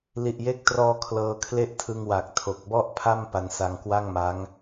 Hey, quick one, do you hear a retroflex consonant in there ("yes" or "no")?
no